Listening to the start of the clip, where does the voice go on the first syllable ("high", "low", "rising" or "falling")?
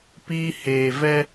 high